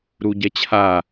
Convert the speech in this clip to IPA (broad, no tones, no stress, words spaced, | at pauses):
ɾuɟɛt͡ɕʰa